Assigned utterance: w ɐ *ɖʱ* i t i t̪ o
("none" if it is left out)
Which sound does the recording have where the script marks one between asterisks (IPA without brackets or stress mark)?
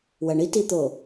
ɳ